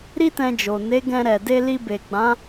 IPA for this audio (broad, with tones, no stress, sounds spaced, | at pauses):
ɾ i˦ t ɛ̃˧ d͡ʒ o˨ n e˨˦ ɡ ɛ̃˧ ɾ ɛ˨ d e˧ l i˧ b e˨ ɡ͡b ã˨˦